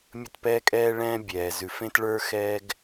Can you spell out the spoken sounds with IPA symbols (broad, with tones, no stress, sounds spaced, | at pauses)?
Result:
mʲ ə˧ t p ɛː˧ kʼ ɛ˧ ɭ ɛ̃ː˧ bʲ ɛː˩ z ʉ˩ f ẽ˧ t ɭ ə˞˧ x ɛː˧ ɡ